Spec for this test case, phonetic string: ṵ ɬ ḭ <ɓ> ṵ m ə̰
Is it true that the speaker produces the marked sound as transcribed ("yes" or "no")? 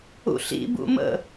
no